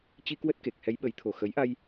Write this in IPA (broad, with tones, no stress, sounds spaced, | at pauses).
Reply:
t͡ɕ i˧ k w ə˦˥ t̚ k e˨˩ k̚ h ɛ˨˦ j ɓ ə˨˦ j t̪ʰ o˨˩ x ə˨˦ j ʔ a˧ j